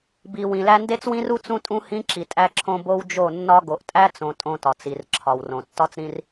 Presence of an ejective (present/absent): present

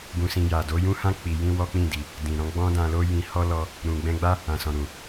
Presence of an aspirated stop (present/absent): absent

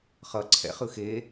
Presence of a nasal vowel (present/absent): absent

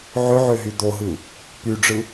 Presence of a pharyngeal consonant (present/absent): present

